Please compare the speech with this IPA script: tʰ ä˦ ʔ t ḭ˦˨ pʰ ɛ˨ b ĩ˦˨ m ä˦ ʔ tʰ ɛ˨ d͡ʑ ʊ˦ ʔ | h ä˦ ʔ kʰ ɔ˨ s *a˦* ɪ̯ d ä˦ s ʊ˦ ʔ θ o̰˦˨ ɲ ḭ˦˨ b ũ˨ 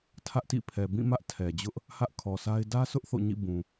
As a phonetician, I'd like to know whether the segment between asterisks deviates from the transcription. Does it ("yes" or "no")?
no